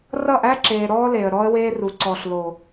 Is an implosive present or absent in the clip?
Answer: absent